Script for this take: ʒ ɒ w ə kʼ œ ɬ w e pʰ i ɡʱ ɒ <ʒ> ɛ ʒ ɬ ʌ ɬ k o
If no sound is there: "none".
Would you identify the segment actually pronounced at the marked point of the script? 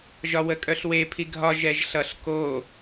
ʒ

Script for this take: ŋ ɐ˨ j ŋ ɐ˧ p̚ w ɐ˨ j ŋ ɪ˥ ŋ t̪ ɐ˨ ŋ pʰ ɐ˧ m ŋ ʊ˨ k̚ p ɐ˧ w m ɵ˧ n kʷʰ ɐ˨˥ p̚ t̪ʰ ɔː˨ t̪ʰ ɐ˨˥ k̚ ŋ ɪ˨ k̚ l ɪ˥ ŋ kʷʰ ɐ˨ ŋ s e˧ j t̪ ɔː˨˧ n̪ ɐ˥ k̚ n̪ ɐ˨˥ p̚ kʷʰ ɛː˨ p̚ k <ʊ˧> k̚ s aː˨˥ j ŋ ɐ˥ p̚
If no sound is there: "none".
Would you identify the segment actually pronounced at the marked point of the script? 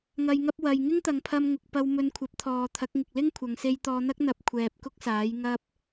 ʊ˥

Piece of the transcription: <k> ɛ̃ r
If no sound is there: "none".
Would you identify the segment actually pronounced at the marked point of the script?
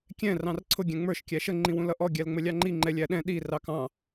kʲ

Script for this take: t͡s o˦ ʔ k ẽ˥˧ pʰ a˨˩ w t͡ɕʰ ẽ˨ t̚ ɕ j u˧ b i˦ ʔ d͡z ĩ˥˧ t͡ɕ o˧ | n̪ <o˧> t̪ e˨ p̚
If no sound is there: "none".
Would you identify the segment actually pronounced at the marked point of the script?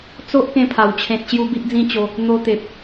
o˧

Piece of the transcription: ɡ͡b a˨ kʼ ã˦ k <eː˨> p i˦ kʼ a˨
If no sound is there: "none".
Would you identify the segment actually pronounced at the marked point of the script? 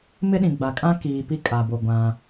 iː˨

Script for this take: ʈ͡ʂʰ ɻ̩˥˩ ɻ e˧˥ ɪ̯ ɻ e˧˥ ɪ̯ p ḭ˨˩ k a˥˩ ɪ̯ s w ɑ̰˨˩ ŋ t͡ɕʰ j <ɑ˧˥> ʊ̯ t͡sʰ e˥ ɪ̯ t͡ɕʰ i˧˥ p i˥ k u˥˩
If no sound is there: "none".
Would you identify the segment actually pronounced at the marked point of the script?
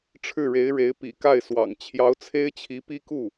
ɑ˧˥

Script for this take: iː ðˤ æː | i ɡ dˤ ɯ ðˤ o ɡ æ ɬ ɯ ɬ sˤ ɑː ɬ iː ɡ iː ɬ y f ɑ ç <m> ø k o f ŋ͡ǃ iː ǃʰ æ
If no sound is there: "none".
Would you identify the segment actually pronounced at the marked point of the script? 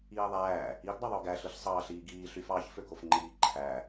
f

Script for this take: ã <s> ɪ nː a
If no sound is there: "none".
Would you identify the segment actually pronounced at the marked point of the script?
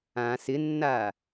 s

